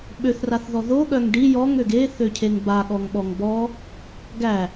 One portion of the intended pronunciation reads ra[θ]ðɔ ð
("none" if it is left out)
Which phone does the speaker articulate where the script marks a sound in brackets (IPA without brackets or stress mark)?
θ